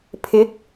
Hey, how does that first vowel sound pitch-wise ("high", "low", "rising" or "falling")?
rising